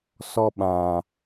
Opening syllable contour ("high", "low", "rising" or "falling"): high